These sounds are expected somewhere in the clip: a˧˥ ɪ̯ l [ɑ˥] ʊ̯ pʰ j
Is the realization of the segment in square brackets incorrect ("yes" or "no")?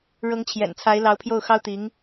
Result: yes